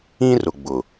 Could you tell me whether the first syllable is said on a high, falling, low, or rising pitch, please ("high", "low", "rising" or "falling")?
high